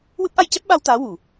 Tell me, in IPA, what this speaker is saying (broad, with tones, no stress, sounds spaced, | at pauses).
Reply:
w ɨ˦˥ p̚ ʔ a˧ j c ɛ˦˥ p̚ ɓ a˧ w t̪ aː˧˥ w u˨˩˨